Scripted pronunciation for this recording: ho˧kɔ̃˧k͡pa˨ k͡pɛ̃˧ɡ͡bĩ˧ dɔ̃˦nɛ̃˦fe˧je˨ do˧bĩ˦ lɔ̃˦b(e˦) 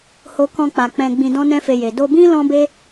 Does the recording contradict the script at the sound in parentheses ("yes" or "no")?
no